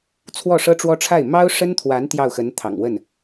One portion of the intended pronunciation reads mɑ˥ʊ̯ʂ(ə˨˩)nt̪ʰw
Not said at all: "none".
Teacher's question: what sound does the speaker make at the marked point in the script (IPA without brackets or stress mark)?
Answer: ə˥